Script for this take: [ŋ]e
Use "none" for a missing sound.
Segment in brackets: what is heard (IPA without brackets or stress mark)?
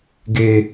ɡ